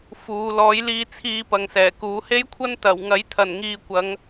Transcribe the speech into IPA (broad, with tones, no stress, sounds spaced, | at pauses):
f uː˨˧ l ɔː˨˥ j l iː˧ t͡sʰ iː˧ p ɐ˨ ŋ s ɛː˨˩ k uː˨˥ h e˥ j kʷʰ ɐ˥ n t̪ ɐ˨˩ w ŋ ɐ˨˥ j t̪ʰ ɐ˨˩ n ŋ iː˨ kʷ ɐ˨˧ ŋ